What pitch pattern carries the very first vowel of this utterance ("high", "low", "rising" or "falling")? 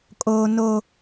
high